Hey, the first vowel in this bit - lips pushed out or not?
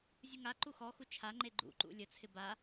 no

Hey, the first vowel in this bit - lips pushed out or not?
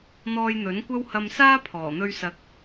yes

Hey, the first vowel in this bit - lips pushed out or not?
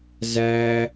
no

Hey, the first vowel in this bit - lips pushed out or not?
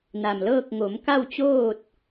no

